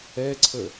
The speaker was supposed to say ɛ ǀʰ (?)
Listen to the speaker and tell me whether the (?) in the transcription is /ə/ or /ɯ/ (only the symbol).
ə